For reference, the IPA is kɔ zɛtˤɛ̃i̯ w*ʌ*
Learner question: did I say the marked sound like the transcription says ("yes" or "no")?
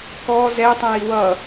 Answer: yes